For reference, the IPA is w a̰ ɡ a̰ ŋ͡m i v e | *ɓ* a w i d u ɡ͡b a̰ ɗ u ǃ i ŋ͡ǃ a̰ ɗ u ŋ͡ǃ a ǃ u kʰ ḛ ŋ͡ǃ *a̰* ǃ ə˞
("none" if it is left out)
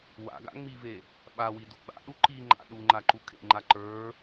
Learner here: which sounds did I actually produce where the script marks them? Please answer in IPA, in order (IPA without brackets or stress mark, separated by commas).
ɓ, a